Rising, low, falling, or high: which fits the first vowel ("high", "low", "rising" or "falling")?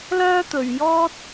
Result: high